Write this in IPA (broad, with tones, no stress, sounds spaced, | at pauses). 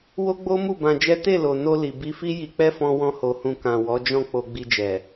w o˦ ɡ͡b o˦ m u˦˨ b ã˧ d͡ʒ ɛ˦ t e˦˨ l o˨ n o˧ l i˨ b i˧ f i˦ j i˧ k͡p ɛ˦ f ɔ̃˦ w ɔ̃˦ h o˧ h ũ˧ k ã˨ w ɔ˨˦ d͡ʒ ɔ̃˦˨ k͡p o˧ ɡ͡b i˧ d͡ʒ ɛ˨